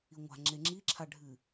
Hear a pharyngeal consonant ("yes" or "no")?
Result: no